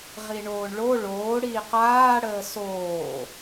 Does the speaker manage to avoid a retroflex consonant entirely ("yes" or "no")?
no